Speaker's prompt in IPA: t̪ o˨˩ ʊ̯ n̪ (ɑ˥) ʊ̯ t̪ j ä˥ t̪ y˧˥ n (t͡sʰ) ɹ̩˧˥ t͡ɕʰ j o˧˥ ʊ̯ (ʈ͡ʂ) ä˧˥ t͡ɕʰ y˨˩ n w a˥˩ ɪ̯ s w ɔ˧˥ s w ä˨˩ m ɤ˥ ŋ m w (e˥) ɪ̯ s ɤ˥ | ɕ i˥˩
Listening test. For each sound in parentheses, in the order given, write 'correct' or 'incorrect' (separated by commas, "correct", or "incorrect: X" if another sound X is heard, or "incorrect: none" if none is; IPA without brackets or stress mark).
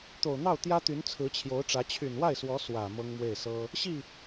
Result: incorrect: ɑ˥˩, correct, correct, incorrect: e˥˩